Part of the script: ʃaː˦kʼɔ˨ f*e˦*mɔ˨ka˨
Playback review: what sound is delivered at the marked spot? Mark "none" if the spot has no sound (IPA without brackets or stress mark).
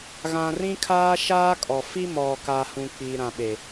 i˦